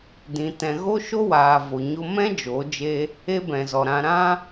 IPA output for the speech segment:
dĩ˨ tɛ̃˨ ɣo˦ʃo˦waː˨ vo˨ɲo˧mɛ̃˦ d͡ʒo˨˦d͡ʒe˦ | e˧ bɛ̃˨zɔ˨ɾã˧ ɾã˦

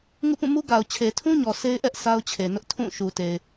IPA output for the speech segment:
ŋṵ˦˨pũ˦˨mu˦ ɡa˨ʊ̯t͡ɕʰe˨tʰũ˦ɲɔ˨ sʰe˦ɪ̯ʔɛ˦ʔ sa˦ʊ̯t͡ɕʰe˨nʊ˦ʔ tʰũ˦˨ʃu˨te˨ɪ̯

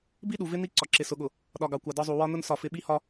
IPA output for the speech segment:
bi˦ɗu˨vɪ˦ ni˦ ǀɒ˨ǁɪ˨sʊ˨ɠʊ˨ | ɗɒ˨ɡɑ˨kʷɑ˨ dɒ˦zˤu˨ wɒ˦ nʊ˦n sɒ˦˨fɪ˦ ɓi˦hɒ˦

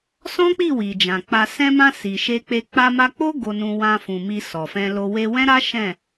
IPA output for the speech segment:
sɔ̃˦k͡pi˦˨ wi˨d͡ʒã˨k͡pa˧ sɛ̃˧mã˧ si˨ʃe˧k͡pe˧ k͡pa˧ma˧k͡po˦ ɡo˧nũ˧ wã˧ fũ˨mi˧ sɔ˨fɛ̃˧lo˧ we˧wɛ̃˦ɾa˦ ʃɛ̃˦˨

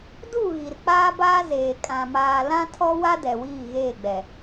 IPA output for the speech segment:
du˦˨ ɣi˨rk͡paː˦baː˦zeː˨ kʼã˨maː˨ lã˦tʰɔ˦wa˦ dɛ˨wiː˦˨ɣeː˦˨ɡ͡bɛ˨

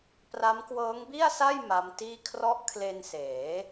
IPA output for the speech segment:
pra˦˥mkwɤː˦˥ŋbi˥˩a̯sa˥˩j ma˦˥mtiː˥˩ kʰrɔ˦˥ʔkʰle˧nseː˩˦

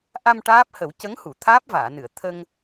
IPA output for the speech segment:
ʔa˧m ʈaː˦˥p̚hə˨˩˦w cə˧˥ŋhu˨˩˨ t̪ʰaː˦˥p̚vaː˨˩˨nɨ˨˩˨ə̯ t̪ʰə˧ŋ

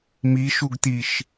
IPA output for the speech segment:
miʃuɡt̪iʃ

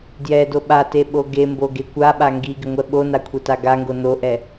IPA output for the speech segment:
djɛdo ɓate ɓoɡembo ɡekʷaɓa ŋɡiɡɪ ŋʷɛɓona kʷʰɛtaɡaŋɡo noʔɛ

